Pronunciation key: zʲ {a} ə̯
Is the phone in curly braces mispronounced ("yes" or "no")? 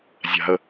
yes